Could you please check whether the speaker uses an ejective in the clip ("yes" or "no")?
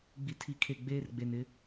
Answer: no